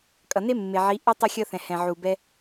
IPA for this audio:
kʼ ʌ˨ n e˦ mː e˨ ʕ i˨˦ ʔ ɛ˦ tˤ ʌ˧ xʲ ʌ˧ θ ɛ̃˨ h ɛ̃˨ ʕ u˨ b ɛ˦

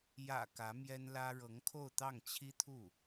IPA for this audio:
j ä̰˨˩ k ä˧˥ m j ɛ˥ n l ä˥ ɻ ɤ˧˥ ŋ kʰ o˥˧ ʊ̯ t̪ ɑ˥˩ ŋ t͡ɕʰ i˥ t̪ʰ u˥˩

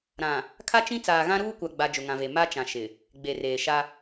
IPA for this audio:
ɾ ã˨ | kʰ a˦ t͡ʃ ĩ˦ t͡s aː˨ ɣ ã˦ ɾ uː˦ kʷ a˨ ɡ͡b a˦ d͡ʒ ʊ˨ ŋ ã˨ v e˨ m a˦ t͡ʃ ã˨ ʃ ɪ˨ | ɡ͡b e˨ r eː˨ ʃ a˦

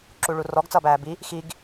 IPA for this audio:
ǁ u ɭ u r ɔ ɡ t͡s ʌː b æː b i | x i ɡ

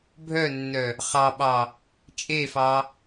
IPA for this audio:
bʱ œ nː œ | χ ɑ ɓ ɑ | t͡ʃʼ e f ɑ

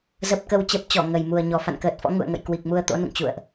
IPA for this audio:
z ə˨˩ p̚ k ə˨˩ w t͡ɕ ə˨˩ p̚ t͡ɕ ɔ˧˩ ŋ ə˨˩ j m u˨˩ ə̯ ɲ ɔ˨˩ f a̰˧˨ n k əː˨˩ t̚ f ɔ̰˧˥ ŋ ṵ˧˨ ə̯ ŋ ə̰˧˨ j k w i˨˩ k̚ m u˧ ə̯ t̪ o̰˧˥ n ṵ˧˨ ŋ t͡ɕ ṵ˧˨ ə̯ ʔ

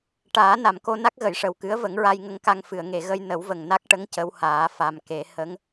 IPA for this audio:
ʈ aː˨˩˦ n a˨˩˨ m k o˧ n a˦˥ k̚ ɣ ə˨˩˨ j ʂ ə˨˩ w k ɨ˧˥ ə̯ v ə˨˩˦ ŋ ɹ a˧ j ŋ ə˧ ŋ k a˧ ŋ f ɨ˨˩˨ ə̯ ŋ e˨˩˨ ɣ ə˧ j n ə˨˩˦ w v ə˨˩ ŋ n a˦˥ k̚ ʈ ə˧˥ ŋ c ə˧˥ w h aː˨˩˦ f a˨˩ m k e˨˩˦ h ə˧˥ ŋ

